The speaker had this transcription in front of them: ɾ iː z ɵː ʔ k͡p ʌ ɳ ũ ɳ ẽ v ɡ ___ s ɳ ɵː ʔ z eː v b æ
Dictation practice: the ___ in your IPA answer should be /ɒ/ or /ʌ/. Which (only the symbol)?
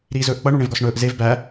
ɒ